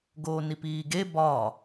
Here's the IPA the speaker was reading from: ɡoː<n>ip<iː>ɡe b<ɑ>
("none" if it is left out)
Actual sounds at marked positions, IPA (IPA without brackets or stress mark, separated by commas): n, iː, ɒ